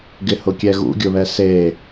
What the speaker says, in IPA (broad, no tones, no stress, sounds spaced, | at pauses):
ɡ ɪ h ʊ kʲ ɛ ɣ ṵ ɡʲ ʊ β ɛ s e